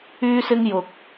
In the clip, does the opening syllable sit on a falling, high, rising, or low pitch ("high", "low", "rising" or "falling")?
high